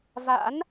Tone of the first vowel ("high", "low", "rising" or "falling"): rising